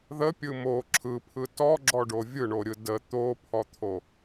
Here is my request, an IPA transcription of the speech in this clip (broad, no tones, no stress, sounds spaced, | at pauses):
ð ə pʲ ɯ m o ǁʰ ɯ pʰ ɯ t ɔ ɡ͡ǁ ɔ ɖ o vʲ ɯ ɳ o ɾʲ ɯ d ə t̪ o pʰ ɔ t̪ʰ o